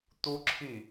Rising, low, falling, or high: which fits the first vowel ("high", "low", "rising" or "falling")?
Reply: high